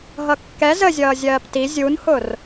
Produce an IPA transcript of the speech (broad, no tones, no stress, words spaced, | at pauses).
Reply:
ɦʌkːɛ zəzʲʌː zʲɜːpti zʲunhʊr